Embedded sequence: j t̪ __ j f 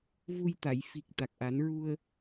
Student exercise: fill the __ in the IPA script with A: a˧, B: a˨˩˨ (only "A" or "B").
B